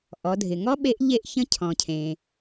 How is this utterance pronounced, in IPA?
ʔ ɔ˩˧ dʱ ɪ˩ ŋ ɔ˥ ɓ e˧˥ ʔ ʎ e˧ ʔ ç ə̃˧˥ cʰ ɔ̃˩ cʰ ẽ˩

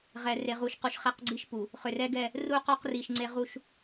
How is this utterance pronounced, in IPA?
ʁ ɛ˨ r e˨ ʁ u˨ ʃ q u˨ ʃ χ ɛ˦˨ q ɡ͡ǀ i˦ ʃ p u˨ | χ ø˨ r ɛ˦ ɡ ɛ˦˨ | r u˦ q ɔ˦ q r i˨ ʃ ŋ͡ǀ e˦ ʁ u˦ ʃ

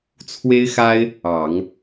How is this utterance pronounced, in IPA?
t͡sʰ w e˥ ɪ̯ x a˥ ɪ̯ | ɑ˨˩˦ ŋ

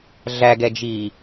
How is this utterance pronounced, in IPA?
ɮ æ ɡ ɛ d͡ʒ iː

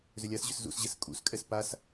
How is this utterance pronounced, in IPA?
z ʏ lʲ a s ʑ ʏ s z ṵ s ʑ ɛ s kʼ ṵ s kʼ ɛ s p a s

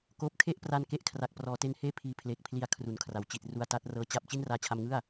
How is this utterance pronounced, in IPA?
k oː˦˥ p̚ kʰ e˥˩ ʔ p r a˧ n k e˥˩ ʔ kʰ r a˨˩ k̚ p r ɔː˩˦ t e˧ n h eː˥˩ pʰ iː˧ pʰ l eː˨˩ k̚ pʰ l i˧ a̯ kʰ r u˩˦ n kʰ r a˩˦ w t͡ɕ i˨˩ t̚ r u˧ a̯ t a˦˥ t̚ r ɤː˧ t͡ɕ a˥˩ p̚ t͡ɕ i˥˩ n r aː˧ t͡ɕʰ a˧ m ŋ ɯ˥˩ a̯

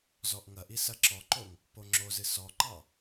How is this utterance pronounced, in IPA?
z ɔ ʔ ŋ ɐ ʔ i s ɐ ǁ ɔ ǃ o ŋ | p o ŋ͡ǁ o z ɨ s ɔ ǃ ɑ

